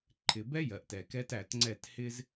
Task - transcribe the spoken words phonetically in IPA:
ǃʰ ɪ˨ b ɛ˦ j ɜ˨ ʔ t ɛ˨ k ɛ˦ t æ˨ t ŋ͡ǀ ɛ˦˨ t h ɪ˦ z

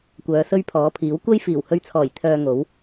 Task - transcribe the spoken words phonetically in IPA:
kʷ œː˨˧ s ɵ˥ ɥ pʰ ɔː˨˥ pʰ iː˨˥ w kʷ ɐ˥ j f iː˨˩ w h ɵ˧ ɥ t͡sʰ ɔː˨˩ j t̪ʰ œː˧ ŋ o˨˥ w

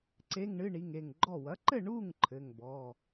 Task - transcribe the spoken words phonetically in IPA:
ǀ e˧˥˧ ŋ ɳ ɨ˧˥˧ ɳ i˩˧˩ ŋ e˧˩ ŋ ɡ͡ǃ ɔ˧˩ w ɐ˩˥ ǃ ɘ˥˨ ɳ u˥˨ ŋ ǃʰ ɘ˩˧˩ ŋ b ɔ˩˧˩

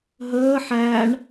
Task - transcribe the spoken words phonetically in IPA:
ɦ əː ħ æ ɳ

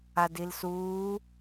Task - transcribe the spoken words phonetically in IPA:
a d i l s uː

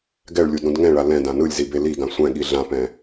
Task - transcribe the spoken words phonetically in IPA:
ɡ ɛ ɭ lʲ u d ɾ ũ d ŋ ɛ̃ ɭ a l ɛ̃ d ã n ɯ lʲ z i b e l i ɡ ã sʷ ɛ̃ ɠ i ɮ ã p ɛ̃

